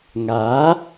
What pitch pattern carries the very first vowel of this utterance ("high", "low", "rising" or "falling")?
rising